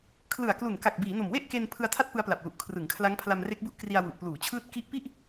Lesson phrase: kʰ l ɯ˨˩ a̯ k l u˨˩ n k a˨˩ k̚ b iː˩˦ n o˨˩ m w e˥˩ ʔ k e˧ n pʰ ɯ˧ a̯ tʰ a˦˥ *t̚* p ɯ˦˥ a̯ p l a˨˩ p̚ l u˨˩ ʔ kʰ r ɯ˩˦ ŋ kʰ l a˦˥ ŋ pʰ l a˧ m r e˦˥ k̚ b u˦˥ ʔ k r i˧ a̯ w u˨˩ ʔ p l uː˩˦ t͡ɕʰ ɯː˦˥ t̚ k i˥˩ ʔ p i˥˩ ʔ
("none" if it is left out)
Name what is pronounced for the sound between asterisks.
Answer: t̚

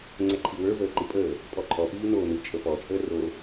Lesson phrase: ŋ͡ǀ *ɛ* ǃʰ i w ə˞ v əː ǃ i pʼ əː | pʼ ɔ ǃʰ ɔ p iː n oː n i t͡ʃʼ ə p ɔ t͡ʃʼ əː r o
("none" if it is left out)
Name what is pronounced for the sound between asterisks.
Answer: ɛ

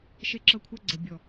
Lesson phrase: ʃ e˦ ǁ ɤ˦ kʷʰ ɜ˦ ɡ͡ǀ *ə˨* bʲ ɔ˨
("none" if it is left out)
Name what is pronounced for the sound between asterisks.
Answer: ə˨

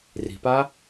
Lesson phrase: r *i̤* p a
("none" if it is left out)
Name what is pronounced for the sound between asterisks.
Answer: i̤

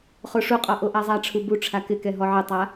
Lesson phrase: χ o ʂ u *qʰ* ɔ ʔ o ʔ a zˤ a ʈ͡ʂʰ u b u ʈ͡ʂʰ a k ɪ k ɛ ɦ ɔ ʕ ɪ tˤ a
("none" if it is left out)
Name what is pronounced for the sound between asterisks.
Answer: qʼ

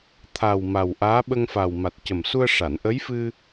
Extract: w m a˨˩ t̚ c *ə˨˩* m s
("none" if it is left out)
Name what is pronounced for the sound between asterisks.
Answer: ə˨˩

